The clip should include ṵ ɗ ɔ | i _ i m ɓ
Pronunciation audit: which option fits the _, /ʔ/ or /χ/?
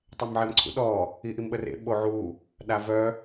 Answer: ʔ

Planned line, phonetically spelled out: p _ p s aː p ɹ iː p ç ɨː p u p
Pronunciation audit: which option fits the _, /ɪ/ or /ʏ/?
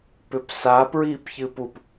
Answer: ʏ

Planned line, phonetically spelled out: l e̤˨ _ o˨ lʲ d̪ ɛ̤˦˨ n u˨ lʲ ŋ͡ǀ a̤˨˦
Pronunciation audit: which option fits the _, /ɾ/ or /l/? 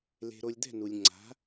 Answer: ɾ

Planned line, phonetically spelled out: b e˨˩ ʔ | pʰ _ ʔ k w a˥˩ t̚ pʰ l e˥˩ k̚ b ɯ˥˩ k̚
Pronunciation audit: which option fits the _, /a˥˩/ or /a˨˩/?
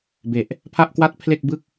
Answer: a˥˩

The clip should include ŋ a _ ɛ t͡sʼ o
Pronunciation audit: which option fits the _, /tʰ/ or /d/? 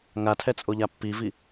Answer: tʰ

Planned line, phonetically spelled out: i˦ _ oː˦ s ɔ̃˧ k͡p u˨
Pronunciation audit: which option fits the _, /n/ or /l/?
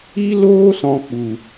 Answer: l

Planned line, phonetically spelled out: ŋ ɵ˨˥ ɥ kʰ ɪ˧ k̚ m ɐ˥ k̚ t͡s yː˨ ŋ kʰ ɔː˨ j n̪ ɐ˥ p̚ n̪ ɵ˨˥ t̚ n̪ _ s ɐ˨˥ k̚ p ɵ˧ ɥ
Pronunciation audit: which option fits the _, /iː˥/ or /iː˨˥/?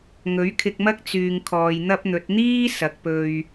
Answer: iː˥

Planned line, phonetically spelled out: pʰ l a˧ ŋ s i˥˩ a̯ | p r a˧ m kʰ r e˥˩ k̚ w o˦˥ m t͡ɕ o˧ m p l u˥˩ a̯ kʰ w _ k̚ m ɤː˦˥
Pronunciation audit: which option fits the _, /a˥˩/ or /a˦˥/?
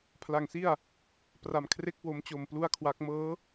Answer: a˦˥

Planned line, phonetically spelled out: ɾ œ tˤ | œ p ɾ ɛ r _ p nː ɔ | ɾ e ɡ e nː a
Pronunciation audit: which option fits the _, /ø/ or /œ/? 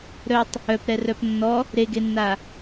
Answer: œ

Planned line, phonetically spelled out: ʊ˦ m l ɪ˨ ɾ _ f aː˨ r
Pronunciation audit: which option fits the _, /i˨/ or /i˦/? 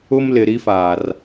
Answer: i˦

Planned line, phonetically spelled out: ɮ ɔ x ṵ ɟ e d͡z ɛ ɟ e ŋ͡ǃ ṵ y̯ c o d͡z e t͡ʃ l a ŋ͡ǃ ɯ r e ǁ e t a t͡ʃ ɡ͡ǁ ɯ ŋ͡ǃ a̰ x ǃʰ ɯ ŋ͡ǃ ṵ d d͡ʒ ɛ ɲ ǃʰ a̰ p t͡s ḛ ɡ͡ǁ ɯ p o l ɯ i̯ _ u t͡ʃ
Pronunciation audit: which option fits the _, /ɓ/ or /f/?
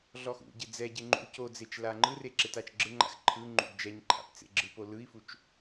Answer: f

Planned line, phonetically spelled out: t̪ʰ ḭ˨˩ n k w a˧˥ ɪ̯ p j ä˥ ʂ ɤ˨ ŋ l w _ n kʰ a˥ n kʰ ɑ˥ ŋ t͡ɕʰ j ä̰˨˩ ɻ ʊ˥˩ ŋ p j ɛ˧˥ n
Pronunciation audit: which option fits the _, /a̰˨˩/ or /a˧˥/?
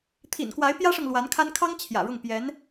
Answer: a˧˥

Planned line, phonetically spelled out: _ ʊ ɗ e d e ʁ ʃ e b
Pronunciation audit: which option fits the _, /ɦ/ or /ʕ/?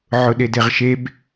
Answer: ʕ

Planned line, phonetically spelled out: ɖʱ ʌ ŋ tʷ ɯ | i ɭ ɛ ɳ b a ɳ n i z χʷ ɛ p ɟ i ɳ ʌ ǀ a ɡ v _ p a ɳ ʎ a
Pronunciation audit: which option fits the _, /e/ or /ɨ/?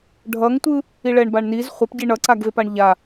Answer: e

